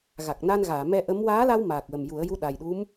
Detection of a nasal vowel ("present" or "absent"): absent